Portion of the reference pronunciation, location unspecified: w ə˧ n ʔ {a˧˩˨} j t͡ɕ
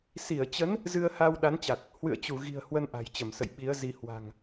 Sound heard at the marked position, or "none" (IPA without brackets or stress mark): a̤˨˩